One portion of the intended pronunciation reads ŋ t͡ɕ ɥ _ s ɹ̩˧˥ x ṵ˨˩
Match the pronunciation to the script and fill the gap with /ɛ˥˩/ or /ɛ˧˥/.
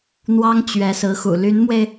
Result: ɛ˧˥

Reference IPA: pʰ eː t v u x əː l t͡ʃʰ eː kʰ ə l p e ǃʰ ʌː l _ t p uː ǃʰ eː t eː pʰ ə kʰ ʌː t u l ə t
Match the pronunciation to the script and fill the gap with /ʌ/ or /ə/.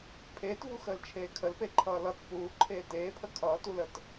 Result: ʌ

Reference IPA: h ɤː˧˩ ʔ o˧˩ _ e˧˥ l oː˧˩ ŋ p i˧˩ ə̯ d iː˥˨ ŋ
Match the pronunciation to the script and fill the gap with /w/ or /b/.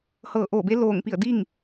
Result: b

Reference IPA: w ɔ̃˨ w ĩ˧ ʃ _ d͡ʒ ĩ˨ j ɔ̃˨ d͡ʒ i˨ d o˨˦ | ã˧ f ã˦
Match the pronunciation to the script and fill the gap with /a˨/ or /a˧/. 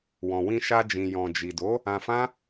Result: a˧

